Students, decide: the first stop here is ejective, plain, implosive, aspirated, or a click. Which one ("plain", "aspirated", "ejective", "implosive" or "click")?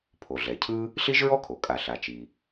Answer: aspirated